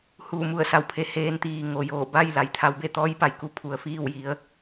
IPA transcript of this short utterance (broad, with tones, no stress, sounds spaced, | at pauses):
h uː˧˩ m u˧˩ ə̯ s a˧˩ w pʰ e˩ h eː˧ n t̪ iː˩ ŋ o˩ j oː˧˩ b a˥˨ j l a˩˧ j t̪ʰ a˩˧ w b e˥˨ t̪ ɔː˧˥ j p a˩˧ j k u˧ pʰ u˩ ə̯ f iː˥˨ w j i˩˧ ə̯